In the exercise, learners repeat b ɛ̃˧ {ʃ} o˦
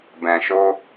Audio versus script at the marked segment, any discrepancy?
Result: no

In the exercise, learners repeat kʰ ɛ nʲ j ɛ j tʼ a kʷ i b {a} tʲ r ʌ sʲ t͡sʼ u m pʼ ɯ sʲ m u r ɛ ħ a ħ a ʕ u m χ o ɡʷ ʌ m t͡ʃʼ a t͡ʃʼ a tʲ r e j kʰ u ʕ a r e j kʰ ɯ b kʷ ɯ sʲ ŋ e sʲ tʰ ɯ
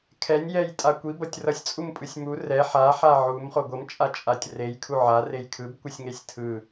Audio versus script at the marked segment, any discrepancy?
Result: yes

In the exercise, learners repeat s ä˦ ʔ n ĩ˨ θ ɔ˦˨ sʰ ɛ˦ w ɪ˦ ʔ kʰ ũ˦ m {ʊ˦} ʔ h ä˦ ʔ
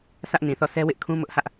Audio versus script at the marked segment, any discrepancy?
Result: no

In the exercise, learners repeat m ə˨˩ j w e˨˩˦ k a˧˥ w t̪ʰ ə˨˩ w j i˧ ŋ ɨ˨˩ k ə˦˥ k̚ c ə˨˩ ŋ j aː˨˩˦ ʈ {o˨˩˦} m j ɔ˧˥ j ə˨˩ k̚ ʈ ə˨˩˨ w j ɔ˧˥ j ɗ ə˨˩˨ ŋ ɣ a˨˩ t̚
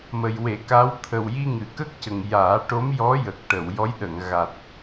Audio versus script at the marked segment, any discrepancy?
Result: yes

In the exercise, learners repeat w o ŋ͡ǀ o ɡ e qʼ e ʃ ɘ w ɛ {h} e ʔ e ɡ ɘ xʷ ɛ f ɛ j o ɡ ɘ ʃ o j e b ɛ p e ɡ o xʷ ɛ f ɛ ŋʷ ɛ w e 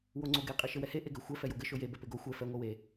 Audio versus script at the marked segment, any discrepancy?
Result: no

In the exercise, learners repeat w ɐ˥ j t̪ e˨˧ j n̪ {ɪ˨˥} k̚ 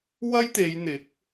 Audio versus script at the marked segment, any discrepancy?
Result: no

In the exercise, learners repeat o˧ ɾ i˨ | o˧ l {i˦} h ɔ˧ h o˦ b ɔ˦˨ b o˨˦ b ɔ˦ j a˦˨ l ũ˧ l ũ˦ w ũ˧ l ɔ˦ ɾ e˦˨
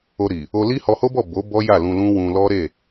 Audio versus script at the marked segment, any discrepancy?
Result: no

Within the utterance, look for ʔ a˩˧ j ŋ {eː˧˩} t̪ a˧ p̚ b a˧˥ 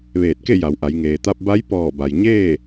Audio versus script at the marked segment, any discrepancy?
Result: yes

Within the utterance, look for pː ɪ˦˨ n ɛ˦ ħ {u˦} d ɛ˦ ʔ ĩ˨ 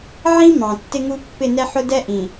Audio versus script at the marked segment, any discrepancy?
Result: yes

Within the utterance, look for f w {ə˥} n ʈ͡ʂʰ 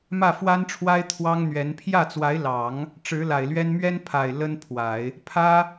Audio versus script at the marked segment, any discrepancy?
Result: yes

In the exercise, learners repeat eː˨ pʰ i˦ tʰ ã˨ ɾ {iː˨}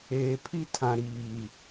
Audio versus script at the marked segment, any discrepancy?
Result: no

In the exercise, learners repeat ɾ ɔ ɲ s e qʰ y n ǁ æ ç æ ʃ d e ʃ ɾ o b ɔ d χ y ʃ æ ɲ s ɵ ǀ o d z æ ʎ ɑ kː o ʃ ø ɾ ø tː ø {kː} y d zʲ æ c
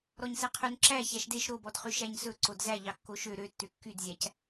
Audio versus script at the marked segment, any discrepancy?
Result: no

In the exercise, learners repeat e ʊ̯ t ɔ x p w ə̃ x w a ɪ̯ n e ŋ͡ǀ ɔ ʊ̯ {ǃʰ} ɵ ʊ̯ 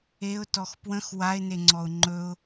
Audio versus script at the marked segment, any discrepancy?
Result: yes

